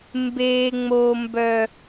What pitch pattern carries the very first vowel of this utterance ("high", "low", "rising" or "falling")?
high